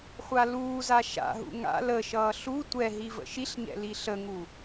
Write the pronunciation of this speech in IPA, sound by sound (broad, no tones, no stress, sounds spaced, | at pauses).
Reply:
χʷ a l uː z a ʃ a̰ ɦ ṵ ŋ a̰ l ə ʃ ʌː ɬ u tʷ ɛ ɦ i v ə̰ ʃ i ɬ ɲ ɛ̰ l i ɬ ə ŋ u